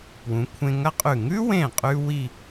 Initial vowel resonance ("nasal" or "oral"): nasal